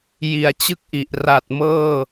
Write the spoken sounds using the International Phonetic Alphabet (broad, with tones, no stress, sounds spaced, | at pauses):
j i˩˦ a̯ t͡ɕ ɯ˥˩ k̚ ʔ i˨˩ ʔ r a˨˩ t̚ m ɤː˥˩